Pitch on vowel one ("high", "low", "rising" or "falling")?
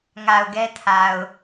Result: low